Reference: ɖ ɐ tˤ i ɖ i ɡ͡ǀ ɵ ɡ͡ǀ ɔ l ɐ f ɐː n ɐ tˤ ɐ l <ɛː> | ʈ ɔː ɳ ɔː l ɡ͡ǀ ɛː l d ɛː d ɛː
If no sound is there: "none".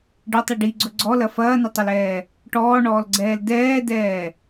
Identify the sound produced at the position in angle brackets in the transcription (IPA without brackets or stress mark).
ɛː